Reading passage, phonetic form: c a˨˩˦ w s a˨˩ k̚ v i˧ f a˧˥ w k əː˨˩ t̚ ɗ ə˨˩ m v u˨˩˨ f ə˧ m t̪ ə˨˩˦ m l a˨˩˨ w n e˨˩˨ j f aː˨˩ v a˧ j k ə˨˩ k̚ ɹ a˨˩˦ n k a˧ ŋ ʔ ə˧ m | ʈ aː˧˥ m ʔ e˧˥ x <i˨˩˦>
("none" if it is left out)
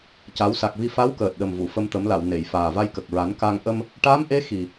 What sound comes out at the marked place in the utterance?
i˨˩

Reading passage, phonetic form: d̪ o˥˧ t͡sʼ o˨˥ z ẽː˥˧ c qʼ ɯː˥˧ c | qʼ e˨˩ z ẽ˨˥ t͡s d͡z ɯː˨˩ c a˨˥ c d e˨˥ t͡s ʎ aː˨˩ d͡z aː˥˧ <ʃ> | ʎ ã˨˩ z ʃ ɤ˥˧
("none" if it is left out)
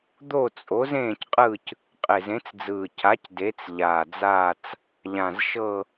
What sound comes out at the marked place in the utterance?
t͡s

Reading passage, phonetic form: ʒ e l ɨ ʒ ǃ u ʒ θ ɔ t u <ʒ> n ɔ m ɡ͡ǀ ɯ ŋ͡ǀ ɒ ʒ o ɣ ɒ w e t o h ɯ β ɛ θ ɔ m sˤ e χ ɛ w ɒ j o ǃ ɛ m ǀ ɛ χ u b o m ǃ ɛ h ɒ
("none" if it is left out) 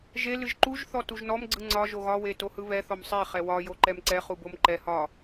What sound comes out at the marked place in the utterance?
ʒ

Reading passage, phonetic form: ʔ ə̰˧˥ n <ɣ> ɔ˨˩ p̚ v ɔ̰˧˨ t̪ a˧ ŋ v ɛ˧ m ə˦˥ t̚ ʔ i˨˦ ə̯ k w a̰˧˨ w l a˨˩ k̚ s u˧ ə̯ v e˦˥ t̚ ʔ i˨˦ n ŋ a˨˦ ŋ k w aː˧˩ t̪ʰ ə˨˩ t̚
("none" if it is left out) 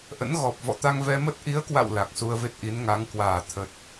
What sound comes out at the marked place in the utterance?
ɣ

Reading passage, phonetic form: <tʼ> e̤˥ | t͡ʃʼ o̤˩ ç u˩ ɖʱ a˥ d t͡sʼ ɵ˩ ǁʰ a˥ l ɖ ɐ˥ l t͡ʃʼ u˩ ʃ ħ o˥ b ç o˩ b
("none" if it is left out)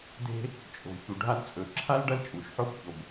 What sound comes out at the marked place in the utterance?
d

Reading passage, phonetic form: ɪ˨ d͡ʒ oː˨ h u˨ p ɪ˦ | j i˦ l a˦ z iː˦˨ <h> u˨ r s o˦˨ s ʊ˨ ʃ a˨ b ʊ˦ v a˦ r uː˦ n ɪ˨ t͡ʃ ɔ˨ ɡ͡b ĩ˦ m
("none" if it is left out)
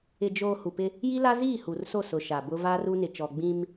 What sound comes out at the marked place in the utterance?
h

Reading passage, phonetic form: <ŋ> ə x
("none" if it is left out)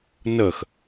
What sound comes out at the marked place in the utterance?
n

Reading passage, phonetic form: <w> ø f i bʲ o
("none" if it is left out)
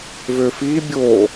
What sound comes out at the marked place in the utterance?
v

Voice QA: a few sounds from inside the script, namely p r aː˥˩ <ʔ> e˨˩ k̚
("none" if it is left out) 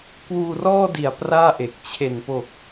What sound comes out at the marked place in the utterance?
ʔ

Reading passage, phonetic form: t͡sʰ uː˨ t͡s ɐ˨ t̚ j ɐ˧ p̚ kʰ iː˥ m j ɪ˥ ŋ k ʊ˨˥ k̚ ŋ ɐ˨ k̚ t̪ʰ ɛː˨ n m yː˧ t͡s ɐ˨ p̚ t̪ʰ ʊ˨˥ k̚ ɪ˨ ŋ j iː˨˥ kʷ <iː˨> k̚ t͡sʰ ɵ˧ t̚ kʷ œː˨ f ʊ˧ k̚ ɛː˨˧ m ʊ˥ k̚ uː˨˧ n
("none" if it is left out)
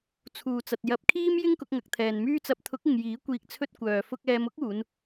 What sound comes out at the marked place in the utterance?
iː˨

